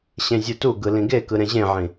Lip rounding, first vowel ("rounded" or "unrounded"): unrounded